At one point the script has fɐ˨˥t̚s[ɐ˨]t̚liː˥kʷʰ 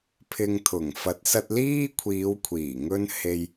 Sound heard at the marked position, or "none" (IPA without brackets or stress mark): ɐ˧